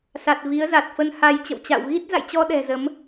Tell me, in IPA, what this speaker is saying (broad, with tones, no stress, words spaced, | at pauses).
sa˨˩t̚ vi˨˦ə̯za˨˩t̚fə˧nha˧j t͡ɕə̰˧˨wt͡ɕa̰˧˨w ɣi˦˥t̚ za̰˧˨jt͡ɕɔ˧ ɗɛ̤˨˩zə˨˦m